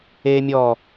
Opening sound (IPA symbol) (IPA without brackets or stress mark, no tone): eː